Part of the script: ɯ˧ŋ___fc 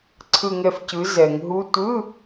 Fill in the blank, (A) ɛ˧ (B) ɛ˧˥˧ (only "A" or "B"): A